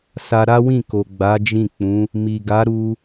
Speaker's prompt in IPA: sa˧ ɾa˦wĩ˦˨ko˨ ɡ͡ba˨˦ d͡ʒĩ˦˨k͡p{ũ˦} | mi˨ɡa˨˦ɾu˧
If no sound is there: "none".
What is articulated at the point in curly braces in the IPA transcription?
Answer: ũ˨˦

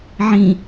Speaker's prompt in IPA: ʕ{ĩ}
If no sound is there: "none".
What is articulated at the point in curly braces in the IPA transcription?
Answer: ĩ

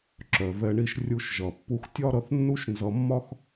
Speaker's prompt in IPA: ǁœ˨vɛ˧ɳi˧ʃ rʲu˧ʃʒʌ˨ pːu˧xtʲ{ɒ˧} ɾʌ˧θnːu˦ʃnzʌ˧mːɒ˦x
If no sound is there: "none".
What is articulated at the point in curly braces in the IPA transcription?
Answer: ɒ˦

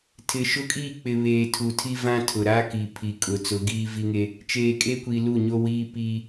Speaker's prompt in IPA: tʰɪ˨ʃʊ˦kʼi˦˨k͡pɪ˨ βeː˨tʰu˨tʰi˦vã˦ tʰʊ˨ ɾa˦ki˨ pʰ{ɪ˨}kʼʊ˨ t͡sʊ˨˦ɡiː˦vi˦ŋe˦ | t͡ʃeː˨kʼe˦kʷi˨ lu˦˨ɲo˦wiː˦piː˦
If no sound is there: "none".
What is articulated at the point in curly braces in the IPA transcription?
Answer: i˨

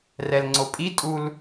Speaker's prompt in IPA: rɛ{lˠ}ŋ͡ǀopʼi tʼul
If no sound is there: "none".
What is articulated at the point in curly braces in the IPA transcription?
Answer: l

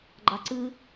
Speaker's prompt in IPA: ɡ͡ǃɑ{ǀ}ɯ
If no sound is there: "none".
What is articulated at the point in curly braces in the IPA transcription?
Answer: ǀ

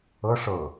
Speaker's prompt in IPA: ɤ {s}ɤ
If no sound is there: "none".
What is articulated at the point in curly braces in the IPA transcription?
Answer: ʂ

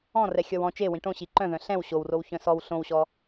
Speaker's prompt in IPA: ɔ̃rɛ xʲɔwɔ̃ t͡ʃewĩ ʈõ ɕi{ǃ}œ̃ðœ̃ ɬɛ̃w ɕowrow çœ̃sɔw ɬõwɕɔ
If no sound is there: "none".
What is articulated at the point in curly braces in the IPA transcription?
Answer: ǃ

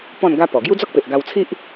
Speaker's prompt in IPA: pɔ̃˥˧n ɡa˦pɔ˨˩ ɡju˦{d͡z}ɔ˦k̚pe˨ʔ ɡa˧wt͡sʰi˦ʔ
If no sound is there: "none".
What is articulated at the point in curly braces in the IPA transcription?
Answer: d͡z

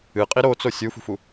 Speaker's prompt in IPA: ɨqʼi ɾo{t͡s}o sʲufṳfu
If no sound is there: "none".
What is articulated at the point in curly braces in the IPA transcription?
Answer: t͡s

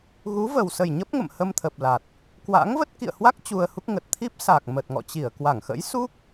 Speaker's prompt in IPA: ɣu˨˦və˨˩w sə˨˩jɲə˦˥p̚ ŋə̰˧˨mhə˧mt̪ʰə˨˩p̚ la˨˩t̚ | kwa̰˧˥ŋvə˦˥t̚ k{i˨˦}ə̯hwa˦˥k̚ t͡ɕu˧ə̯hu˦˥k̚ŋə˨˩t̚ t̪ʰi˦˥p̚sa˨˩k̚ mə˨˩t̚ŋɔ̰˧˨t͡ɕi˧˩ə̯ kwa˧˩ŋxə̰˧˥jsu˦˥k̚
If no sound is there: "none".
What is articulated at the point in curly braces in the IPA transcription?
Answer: ḭ˧˨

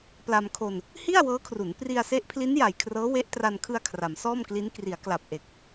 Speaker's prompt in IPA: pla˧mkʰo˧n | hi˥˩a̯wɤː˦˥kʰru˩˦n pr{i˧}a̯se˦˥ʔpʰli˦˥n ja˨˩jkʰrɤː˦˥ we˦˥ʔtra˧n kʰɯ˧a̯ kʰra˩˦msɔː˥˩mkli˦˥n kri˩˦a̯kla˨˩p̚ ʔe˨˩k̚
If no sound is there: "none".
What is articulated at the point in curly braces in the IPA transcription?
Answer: i˧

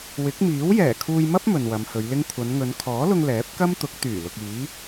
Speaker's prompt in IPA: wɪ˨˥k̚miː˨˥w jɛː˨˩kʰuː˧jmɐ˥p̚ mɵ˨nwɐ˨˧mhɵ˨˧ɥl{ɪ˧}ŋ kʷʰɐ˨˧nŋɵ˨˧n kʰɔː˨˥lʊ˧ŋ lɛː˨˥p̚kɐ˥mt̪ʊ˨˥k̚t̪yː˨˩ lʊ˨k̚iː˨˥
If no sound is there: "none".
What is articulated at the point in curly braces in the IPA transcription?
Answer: ɪ˥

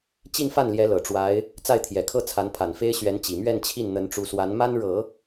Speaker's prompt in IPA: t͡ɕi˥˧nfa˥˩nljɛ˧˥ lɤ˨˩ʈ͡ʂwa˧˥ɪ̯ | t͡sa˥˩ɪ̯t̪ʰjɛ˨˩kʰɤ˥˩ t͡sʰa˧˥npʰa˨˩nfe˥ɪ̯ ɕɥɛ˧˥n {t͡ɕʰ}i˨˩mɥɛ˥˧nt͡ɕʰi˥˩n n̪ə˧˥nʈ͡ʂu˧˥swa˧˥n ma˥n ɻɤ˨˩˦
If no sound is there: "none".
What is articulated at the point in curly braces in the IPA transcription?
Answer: t͡ɕ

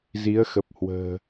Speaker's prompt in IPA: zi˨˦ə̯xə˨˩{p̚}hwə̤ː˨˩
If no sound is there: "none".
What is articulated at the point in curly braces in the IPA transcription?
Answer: p̚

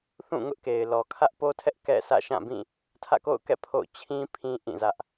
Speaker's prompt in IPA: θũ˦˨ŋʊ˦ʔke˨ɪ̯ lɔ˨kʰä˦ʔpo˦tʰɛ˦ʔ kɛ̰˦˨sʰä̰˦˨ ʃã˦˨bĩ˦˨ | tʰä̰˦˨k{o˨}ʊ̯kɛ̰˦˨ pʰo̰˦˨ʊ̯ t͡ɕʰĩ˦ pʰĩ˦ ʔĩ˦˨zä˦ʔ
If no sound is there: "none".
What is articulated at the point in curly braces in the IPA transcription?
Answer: o̰˦˨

